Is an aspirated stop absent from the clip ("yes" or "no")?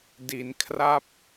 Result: no